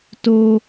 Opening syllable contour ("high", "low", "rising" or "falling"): high